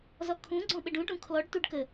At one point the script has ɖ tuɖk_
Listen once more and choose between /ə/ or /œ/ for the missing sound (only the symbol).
ə